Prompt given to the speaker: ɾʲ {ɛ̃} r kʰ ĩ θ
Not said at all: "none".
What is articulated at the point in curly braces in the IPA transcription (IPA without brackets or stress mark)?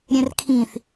ɛ̃